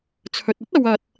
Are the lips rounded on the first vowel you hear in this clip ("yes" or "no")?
yes